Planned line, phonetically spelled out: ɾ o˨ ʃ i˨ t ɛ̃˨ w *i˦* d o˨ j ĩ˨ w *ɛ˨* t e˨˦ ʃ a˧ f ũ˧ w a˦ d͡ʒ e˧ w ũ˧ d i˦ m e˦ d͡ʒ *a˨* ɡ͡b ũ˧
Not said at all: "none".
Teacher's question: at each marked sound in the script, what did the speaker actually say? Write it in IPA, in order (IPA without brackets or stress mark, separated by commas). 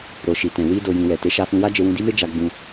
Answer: i˧, ɛ˨, a˧